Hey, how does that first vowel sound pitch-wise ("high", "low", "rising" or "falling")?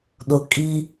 low